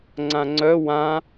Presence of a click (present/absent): present